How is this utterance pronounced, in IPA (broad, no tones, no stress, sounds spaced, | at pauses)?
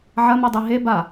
ʕ ɐ m i dˤ i ɦ e b a